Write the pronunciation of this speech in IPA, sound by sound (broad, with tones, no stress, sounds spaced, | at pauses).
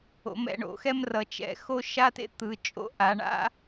o̰˩˧ m ɛ̰˩˧ ɳ o̰˩˥ x ɛ˦ m r ʌ˩˧ t͡ʃ ɛ̰˩˧ x o˦ ʃ a˦ t ḛ˦ t̪ ɯ˩˧ t͡ʃʼ o̰˦ ʔ a˩˧ ɳ a̰˦